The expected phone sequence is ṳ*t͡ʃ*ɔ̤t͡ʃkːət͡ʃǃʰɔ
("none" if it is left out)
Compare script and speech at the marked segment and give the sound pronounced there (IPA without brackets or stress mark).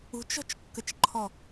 t͡ʃ